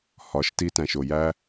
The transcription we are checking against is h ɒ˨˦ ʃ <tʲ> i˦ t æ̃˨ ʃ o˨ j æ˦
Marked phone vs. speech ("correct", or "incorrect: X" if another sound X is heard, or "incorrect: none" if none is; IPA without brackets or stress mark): incorrect: t